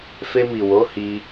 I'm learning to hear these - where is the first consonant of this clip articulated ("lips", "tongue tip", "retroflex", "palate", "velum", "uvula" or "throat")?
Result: lips